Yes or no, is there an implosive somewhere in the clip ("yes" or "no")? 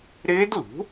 no